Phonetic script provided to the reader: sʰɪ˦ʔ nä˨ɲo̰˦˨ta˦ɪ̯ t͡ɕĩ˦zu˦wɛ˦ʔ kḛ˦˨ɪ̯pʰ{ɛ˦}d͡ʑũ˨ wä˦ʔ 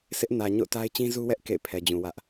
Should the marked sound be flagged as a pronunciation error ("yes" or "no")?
yes